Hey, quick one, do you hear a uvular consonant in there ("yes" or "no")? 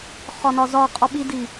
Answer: yes